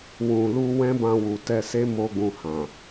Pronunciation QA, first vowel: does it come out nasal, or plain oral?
nasal